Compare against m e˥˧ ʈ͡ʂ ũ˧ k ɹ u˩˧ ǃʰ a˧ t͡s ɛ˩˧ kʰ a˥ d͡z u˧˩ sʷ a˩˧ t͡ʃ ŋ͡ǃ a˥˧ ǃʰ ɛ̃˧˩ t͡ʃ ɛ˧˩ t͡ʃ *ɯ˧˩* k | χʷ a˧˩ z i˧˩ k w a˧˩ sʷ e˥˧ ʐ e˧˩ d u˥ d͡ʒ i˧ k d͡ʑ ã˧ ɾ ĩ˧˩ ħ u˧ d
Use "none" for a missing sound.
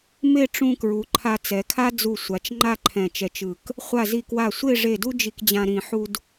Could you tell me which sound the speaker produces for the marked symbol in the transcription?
ɯ˧˩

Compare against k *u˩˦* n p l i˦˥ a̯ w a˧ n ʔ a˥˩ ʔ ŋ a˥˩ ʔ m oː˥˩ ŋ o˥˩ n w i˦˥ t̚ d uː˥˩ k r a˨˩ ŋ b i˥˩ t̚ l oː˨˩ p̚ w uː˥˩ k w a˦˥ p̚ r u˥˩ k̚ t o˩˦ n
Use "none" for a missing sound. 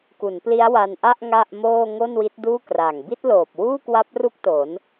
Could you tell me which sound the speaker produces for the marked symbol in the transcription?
u˩˦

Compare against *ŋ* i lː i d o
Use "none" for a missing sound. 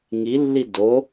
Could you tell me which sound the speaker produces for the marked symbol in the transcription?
ŋ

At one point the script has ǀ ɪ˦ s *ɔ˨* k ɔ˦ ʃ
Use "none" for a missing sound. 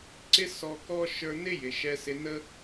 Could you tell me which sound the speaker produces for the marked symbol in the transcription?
ɔ˧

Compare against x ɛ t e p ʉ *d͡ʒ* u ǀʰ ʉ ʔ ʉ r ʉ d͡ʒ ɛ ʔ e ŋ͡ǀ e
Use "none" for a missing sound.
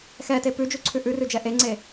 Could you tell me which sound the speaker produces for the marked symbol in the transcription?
d͡ʒ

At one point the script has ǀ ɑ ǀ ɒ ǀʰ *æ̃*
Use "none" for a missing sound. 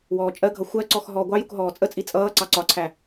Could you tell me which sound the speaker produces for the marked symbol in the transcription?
æ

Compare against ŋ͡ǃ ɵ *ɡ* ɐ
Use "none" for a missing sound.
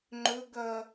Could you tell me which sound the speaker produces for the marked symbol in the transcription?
ɡ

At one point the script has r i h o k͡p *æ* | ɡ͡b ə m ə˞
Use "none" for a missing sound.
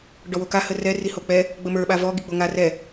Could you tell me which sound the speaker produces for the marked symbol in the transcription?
ɛ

